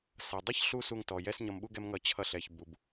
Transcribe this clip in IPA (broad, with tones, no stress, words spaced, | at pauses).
sʌ˩dˤʌ˥ç ɬu˥ su˧ŋtɔ˩ jɛ˥sɲʌ˧mɓu˥ ɡɛ˥mŋʌ˧ t͡ɕʰʌ˧ɬɛ˩ç bu˩b